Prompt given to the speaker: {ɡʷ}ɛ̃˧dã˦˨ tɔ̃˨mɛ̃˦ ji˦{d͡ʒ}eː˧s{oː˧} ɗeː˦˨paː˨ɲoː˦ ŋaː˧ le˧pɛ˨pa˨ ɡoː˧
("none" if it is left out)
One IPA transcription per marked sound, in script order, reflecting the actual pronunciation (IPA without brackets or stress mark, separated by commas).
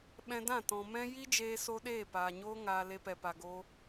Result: ɓ, d͡ʒ, o˧